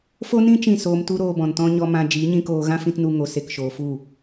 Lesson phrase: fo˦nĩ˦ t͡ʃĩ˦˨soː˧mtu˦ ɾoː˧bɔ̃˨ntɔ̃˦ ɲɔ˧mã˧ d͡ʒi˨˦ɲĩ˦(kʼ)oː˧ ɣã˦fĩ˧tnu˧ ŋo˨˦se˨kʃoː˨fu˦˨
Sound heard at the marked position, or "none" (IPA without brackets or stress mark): k